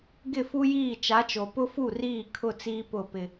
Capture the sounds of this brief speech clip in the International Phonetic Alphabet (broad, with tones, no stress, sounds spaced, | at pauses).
ɡ ɪ˦˨ f u˦ j iː˦˨ t͡ʃ a˨˦ t͡ʃ o˨ p ʊ˦ f u˦˨ r iː˦˨ kʰ ʊ˦˨ t͡s iː˦ p ʊ˦˨ p ɪ˦